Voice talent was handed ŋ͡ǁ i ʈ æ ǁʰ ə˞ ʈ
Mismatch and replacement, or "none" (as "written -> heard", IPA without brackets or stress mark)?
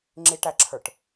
none